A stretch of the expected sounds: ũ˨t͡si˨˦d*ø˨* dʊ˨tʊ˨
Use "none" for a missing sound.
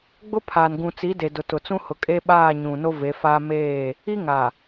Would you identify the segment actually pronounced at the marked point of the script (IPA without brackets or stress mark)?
e˨